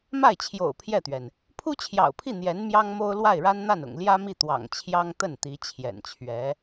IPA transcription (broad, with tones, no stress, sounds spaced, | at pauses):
m a˥˩ ɪ̯ t͡ɕʰ j o̰˨˩ ʊ̯ pʰ j ɛ˥˩ t̪ ɥ ɛ˩ n | pʰ u˥ t͡ɕʰ j ɑ̰˨˩ ʊ̯ pʰ i˥˩ n̪ j ɛ˧˥ n m j ɑ˥ ŋ m o˥ ʊ̯ l w a˥˩ ɪ̯ ɻ a˥ n n̪ a˥˩ n ʊ̰˨˩ ŋ l j ä˥ m i˥˩ t̪ w ɑ̰˨˩ ŋ t͡ɕʰ j ɑ˥ ŋ t̪ ə˥˩ n t̪ i˧˥ t͡ɕʰ j ɛ̰˨˩ n t͡ɕʰ ɥ ɛ˧˥